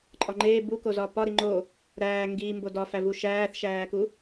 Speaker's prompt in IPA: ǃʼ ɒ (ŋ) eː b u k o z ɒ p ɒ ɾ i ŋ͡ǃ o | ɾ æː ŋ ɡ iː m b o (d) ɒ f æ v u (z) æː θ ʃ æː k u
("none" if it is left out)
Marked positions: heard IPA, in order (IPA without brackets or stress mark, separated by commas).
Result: ŋ͡ǃ, d, ʃ